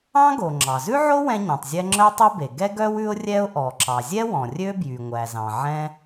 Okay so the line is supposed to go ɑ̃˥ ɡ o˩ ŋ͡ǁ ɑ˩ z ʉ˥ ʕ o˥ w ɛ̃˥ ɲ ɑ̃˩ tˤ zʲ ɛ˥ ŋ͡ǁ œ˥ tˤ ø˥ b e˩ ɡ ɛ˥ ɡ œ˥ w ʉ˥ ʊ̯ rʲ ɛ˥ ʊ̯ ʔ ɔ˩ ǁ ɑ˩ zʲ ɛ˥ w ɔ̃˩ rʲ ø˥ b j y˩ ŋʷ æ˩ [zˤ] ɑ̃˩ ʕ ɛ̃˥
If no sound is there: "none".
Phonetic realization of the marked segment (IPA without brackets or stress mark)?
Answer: z